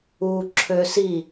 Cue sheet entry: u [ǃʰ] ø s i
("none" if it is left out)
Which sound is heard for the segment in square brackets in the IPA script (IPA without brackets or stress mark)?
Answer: ǁʰ